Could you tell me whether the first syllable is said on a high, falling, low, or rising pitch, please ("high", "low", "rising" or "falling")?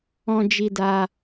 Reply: high